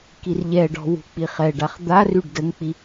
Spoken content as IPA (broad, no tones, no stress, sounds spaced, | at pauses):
k i r ʎ ɛ ɖ ɔ̤ w ṳ k͡p i χ ɛ ɖ a χ d̪ a r y ɖ d ə ŋ k͡p i